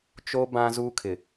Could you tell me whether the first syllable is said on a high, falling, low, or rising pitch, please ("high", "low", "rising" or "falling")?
high